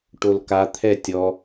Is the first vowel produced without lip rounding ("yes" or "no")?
no